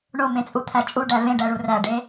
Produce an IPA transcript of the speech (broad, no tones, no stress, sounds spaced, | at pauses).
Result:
ɳ o m ẽ t͡sʼ u t̪ʰ æ t͡ʃʼ u ɖ æ v ẽ ɖ æ ɭ u r æ ɖ e